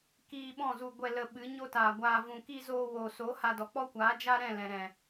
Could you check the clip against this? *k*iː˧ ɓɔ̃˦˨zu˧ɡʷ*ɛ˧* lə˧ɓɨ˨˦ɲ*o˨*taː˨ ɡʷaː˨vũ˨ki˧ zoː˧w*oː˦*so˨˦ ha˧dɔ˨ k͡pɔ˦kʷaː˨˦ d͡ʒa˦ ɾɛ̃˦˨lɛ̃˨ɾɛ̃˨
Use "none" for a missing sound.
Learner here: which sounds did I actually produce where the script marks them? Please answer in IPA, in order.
k, ɛ˧, o˦, oː˨

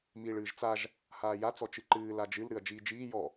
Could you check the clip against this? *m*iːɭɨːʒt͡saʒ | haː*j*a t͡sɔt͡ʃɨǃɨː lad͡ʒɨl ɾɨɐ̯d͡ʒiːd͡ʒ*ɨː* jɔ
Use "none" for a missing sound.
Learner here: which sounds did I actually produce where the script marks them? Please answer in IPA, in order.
m, j, iː

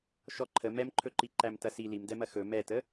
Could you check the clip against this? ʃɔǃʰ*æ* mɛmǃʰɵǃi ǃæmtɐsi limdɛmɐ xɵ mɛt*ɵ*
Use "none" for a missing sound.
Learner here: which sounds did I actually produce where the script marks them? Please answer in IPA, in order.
ə, ə

